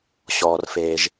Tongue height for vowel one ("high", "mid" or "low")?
mid